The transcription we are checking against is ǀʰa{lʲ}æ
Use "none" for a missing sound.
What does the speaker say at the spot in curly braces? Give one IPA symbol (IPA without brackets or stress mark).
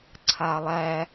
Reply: lˠ